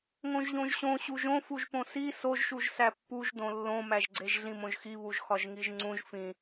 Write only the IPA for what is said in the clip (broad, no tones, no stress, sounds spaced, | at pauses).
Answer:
ŋ õ ʒ ʎ õ ʒ ɕ õ ɕ u ʒ õ f u ʒ p õ s i s o ʒ ʃ u ʒ s æ pː u ʒ d õ lː õ m æ ʒ ɡ͡ǀ e ʒ ɮ ĩ m õ ʒ x i β u ʒ x ɒ ʒ ŋ i ʒ ŋ͡ǀ ũ ʒ f ĩ